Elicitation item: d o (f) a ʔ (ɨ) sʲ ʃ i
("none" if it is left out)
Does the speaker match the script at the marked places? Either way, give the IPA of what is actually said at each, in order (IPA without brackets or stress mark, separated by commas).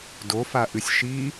f, ɨ